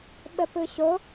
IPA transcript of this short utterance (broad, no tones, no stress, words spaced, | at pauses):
ɓəpɯɕo